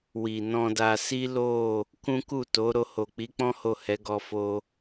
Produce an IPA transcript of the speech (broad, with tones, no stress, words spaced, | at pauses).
wi˨nɔ̃˧da˧ si˦lo˦˨ | kũ˦ku˦˨to˨˦ ɾo˧ho˨k͡pi˨˦k͡pɔ̃˦ ho˦˨hɛ˨˦ ɡɔ˧fo˧